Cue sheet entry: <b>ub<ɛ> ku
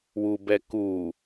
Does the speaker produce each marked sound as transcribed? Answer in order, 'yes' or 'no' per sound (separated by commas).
no, yes